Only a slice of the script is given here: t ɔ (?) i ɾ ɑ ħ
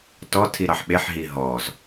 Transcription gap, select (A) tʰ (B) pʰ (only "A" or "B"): A